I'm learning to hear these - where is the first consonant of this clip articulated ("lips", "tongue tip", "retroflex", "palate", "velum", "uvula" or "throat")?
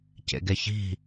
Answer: palate